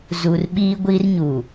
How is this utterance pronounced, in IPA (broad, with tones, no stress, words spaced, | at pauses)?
zu˨rɓiː˦ɡʷi˦rɲu˨